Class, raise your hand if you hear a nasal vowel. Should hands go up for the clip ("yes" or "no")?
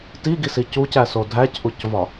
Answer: no